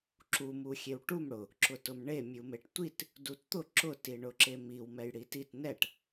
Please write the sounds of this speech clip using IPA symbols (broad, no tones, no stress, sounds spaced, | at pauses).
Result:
ǁ u m u xʲ e w ʈ u m ɽ ʊ | ǁ ʊ t ʊ m ɳ e mʲ u m e ʈ tʷ i t | d u t t̪ ʊ ǁ ʊ t i ɳ ʊ ǁ e m i w m ɛ j ɽ i t i t n ɛ ʈ